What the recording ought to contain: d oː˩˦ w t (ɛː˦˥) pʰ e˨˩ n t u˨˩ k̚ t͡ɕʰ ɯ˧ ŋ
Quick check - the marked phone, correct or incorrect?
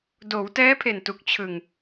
correct